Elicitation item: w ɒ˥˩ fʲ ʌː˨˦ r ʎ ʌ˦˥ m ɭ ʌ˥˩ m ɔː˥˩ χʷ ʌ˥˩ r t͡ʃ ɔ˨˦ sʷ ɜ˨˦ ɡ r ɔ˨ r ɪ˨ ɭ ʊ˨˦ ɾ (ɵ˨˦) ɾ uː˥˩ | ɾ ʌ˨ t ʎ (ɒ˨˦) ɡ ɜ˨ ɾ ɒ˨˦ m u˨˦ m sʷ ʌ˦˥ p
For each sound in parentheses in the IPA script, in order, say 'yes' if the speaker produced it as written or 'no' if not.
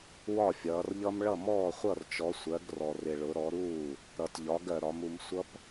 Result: no, yes

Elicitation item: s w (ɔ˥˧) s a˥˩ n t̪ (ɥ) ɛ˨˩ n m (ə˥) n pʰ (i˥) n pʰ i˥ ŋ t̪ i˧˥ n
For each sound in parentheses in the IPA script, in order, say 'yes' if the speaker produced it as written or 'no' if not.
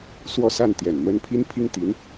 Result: yes, no, yes, yes

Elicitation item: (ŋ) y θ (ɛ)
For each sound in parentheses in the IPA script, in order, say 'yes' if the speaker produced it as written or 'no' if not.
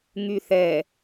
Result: yes, yes

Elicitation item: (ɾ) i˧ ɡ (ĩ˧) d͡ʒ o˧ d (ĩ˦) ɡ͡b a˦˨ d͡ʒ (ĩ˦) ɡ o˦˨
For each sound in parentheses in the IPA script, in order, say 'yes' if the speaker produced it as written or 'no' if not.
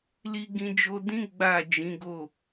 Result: no, yes, yes, no

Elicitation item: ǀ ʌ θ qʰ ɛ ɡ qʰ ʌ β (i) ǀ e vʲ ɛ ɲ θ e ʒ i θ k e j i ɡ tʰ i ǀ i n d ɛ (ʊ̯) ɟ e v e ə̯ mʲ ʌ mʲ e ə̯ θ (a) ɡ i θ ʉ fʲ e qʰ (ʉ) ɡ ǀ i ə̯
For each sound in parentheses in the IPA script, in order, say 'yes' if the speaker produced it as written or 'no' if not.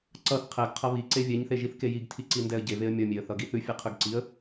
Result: yes, no, no, yes

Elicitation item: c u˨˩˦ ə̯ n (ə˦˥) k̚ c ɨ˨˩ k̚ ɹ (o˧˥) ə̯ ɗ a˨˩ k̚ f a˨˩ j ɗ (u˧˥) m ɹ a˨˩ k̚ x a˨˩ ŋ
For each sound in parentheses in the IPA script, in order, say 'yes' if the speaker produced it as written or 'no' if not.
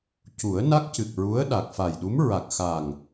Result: no, no, yes

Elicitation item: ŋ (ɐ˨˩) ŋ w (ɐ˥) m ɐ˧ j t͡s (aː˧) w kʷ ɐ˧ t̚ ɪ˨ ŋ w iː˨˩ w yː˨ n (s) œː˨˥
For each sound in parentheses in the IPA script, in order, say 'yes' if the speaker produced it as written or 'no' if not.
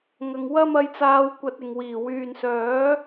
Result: no, yes, yes, yes

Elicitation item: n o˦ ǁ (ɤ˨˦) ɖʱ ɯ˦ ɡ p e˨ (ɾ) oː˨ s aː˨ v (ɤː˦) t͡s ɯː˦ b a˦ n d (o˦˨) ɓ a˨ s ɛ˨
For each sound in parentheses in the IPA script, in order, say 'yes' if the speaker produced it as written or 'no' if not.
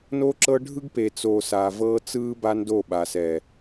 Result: no, no, yes, yes

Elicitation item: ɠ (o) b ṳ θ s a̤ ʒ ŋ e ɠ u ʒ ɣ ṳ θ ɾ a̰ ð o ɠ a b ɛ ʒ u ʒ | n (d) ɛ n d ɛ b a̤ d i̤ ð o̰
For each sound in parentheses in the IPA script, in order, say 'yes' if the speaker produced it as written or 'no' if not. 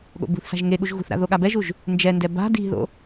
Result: no, no

